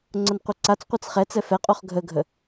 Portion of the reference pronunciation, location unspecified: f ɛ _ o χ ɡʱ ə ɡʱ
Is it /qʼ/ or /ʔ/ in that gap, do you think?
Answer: qʼ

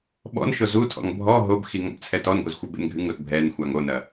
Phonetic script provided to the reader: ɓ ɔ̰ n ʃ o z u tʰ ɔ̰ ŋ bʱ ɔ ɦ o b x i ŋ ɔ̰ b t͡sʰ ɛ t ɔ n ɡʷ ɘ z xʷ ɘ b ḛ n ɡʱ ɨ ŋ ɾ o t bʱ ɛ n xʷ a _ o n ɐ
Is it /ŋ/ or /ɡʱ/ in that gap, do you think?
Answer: ŋ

